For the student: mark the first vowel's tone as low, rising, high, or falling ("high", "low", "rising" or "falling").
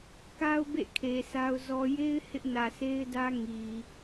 high